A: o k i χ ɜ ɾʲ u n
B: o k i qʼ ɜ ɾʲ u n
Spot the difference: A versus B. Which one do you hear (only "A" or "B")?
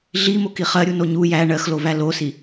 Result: A